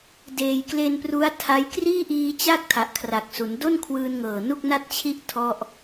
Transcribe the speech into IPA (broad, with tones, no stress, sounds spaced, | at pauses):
d eː˨˩ j k l e˧ n p r u˦˥ a̯ tʰ a˦˥ j k r iː˥˩ ʔ iː˧ t͡ɕ a˥˩ k̚ tʰ a˨˩ ʔ kʰ r a˨˩ k̚ s u˩˦ n d o˥˩ n kʰ w ɯː˧ n ŋ ɤː˨˩ n u˥˩ k̚ n a˥˩ t̚ t͡ɕʰ i˥˩ ʔ tʰ ɔ˥˩ ʔ